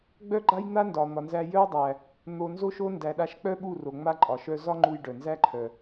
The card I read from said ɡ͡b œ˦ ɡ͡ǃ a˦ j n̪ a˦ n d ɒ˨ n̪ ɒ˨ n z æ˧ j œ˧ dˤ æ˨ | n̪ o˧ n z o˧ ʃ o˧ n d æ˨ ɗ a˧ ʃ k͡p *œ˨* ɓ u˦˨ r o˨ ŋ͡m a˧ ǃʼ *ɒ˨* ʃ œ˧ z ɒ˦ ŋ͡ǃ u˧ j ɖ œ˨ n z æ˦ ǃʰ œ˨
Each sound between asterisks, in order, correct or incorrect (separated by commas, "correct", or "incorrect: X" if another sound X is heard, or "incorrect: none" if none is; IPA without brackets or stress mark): incorrect: œ˦, correct